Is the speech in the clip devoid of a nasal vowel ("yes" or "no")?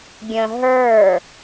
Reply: no